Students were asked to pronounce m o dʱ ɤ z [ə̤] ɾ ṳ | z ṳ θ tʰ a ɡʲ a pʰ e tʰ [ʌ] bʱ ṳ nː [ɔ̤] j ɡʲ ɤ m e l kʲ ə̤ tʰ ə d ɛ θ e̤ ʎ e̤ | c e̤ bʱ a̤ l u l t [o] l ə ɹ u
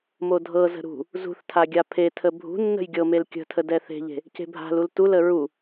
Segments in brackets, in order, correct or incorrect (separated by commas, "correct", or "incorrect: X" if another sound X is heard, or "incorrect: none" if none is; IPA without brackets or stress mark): correct, incorrect: ə, incorrect: ə̤, incorrect: u